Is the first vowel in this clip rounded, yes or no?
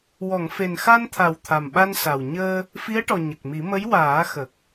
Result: yes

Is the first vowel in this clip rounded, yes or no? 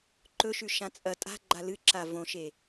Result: yes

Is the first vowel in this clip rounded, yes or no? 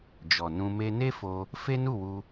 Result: yes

